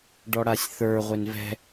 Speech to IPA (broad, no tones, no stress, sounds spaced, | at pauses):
ɖ ɔ ɽ a sʲ θ ə˞ ʁʷ e n v ɛ̤